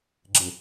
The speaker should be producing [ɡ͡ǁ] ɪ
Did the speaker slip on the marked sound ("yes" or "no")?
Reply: no